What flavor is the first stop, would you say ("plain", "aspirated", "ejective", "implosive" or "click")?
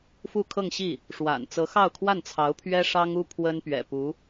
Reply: aspirated